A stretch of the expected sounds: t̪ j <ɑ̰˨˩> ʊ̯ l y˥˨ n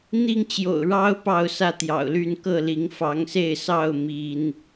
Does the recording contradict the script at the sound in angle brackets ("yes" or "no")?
no